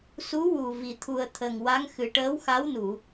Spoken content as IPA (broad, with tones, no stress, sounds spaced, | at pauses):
s u˧˥ w u˨˩ v i˨˩˨ t̪ʰ u˨˩ ə̯ t̪ʰ ə˨˩ ŋ w a˧˥ ŋ x ɨ˨˩ ʈ əː˧˥ w x a˧˥ w n u˨˩˨